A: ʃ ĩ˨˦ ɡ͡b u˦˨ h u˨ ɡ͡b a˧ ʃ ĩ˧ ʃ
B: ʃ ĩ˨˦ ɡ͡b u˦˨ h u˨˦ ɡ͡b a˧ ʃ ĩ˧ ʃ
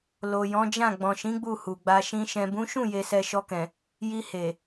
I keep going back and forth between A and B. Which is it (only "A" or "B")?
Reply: A